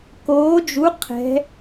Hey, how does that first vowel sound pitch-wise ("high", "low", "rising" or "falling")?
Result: rising